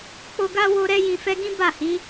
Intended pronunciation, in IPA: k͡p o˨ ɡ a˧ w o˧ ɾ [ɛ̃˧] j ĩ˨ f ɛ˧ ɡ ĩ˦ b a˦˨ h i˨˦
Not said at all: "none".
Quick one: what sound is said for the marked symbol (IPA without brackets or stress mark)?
ɛ˧